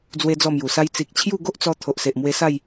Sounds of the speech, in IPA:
d͡z w e˦ d͡z ɔ˥˧ m j u˨˩ s a˦ j t͡s i˨ k̚ t͡ɕʰ j u˥˧ ɡ o˦ ʔ t͡s ɔ˧ t̪ʰ o˨ ʔ s e˨ ʔ m w e˧ s a˥˧ j

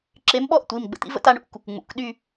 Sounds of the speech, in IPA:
ǁ e˨˥ m ɓ ɔ˥˧ ʔ tʷ i˩˧˩ m ɡ͡b ə̰˨˥ t̪ ḭ˥ v ə̰˥˧ t a˨˥ ɳ ṵ˩˧˩ k | ŋ͡m ṵ˩˧˩ k ɗ y˥˧

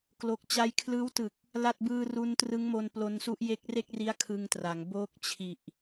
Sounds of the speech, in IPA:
k l o˨˩ k̚ t͡ɕ a˧ j kʰ l ɯː˦˥ w t ɯ˨˩ k̚ | l a˥˩ t̚ b ɯː˧ r u˦˥ n t r ɯ˦˥ ŋ m o˧ n p l o˧ n s u˦˥ ʔ j e˦˥ k̚ r e˥˩ k̚ r i˦˥ a̯ kʰ ɯ˧ ŋ t r a˩˦ ŋ b oː˦˥ k̚ t͡ɕʰ i˨˩ ʔ

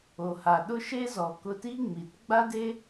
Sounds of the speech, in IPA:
o˨ h a˨ ɗ ʊ˦ ʃ e˦ z ɔ˨ k ʊ˧ t i˦ ŋ͡m i˨ t ɡ͡b a˦ d e˦

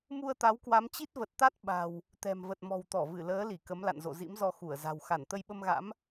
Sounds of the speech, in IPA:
m u˧ ə̯ t̪ a˨˦ w k w a˨˦ m t͡ɕ i˦˥ t̚ v ə˨˩ t̚ t̪ a˦˥ t̚ ɓ a̤˨˩ w | t̪ ɛ̤˨˩ m v ə˨˩ t̚ m ɔ̤˨˩ w t̪ ɔ˧˩ v ɨ˧˩ l əː˨˦ l i˧˩ k ə˨˦ m l a̰˧˨ n z o̰˧˨ z ḭ˧˥ m z ɔ˧ x u˧˩ ə̯ z a̤˨˩ w x a˧˩ n t̪ ə˧ j ɓ ə˧ m ɣ a̰˧˥ m

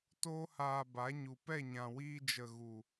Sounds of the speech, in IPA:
t oː˦ h aː˧ b a˨˦ ɲ u˨ p ɛ˦˨ ɲ ã˨ w iː˧ d͡ʒ ə˨ ɣ u˨

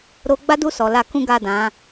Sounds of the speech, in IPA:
ɾ o˧ ɡ͡b a˦ d u˦˨ s ɔ˨ l a˧ k ũ˦ ɡ a˦˨ d ã˨˦

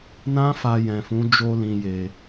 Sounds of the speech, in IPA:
n ã˦ f a˧ j ɛ̃˨ f ũ˨˦ d͡ʒ o˧ l ĩ˨ j e˨

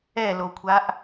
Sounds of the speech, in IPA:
ɛ l o kʷʰ a ʔ

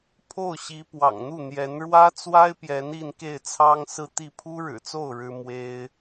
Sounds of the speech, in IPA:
pʰ o˥˩ ʊ̯ ɕ i˧˥ p w ɑ̰˨˩ ŋ n̪ u˥˩ n̪ j ɛ˧˥ n ɻ w ä˥ t͡s w a˥ ɪ̯ p j ɛ˧˥ n i˥˧ n k e˥˩ ɪ̯ t͡sʰ ɑ˥ ŋ s ɹ̩˥˧ t̪ i˥˩ pʰ u˥ ɻ ɻ̩˨˩ t͡s o˥˩ ʊ̯ ɻ ɻ̩˥ m w e˥ ɪ̯

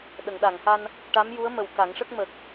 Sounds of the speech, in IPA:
ɗ ə˨˩˨ ŋ ɗ a˨˩˨ ŋ h a˧ n | ʈ a˧˥ m j u˧˥ ə̯ m ə˨˩ w k a˨˩˦ ŋ ʂ ə˦˥ k̚ m ə˨˩ k̚

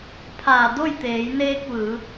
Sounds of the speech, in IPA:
pʰ aː˧˩ d o˥˨ j t̪ eː˩˧ j n eː˧ k̚ ʋ ɯː˩˧

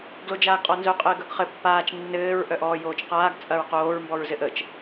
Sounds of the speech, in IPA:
ɡ l o d͡ʒ aː ɡ qʼ ɔ n z œ qʼ ɘː ɡ œ ɡ χ ɘ pː aː t͡ʃ nː ɘː ɹ ʔ œ ʔ ɔː j oː t͡ʃ q aː ɡ t͡sʼ ɐ ɹ q oː ɹ m b ɔ ɹ z ɘ ʔ ə t͡ʃ

